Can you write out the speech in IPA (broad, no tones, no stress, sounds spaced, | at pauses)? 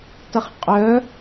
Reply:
t ɐ χ qʼ œ